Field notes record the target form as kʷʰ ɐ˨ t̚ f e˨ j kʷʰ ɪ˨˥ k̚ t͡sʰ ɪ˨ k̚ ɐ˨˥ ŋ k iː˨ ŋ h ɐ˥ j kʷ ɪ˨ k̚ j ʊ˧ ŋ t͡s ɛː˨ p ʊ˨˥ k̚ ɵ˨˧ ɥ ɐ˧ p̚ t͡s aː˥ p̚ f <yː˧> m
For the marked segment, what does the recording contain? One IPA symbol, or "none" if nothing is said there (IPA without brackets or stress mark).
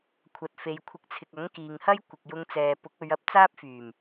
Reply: yː˨˩